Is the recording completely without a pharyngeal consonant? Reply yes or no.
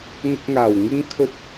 yes